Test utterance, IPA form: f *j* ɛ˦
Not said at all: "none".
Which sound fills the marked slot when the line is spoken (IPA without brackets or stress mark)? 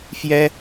j